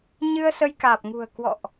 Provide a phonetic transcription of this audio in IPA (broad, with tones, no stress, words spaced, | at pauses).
ɲɨ˧ə̯sə˧jkaː˨˩p̚ŋṳ˨˩ə̯ kwɔ̰˧˨ʔ